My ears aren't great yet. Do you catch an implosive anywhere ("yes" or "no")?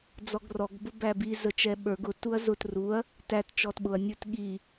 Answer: yes